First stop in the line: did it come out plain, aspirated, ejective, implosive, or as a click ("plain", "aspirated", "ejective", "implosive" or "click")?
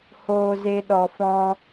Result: implosive